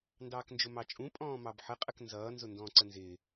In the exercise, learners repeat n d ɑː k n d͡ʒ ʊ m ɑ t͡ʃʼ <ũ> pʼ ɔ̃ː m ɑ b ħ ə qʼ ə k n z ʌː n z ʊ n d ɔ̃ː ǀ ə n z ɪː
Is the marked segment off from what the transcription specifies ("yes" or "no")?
no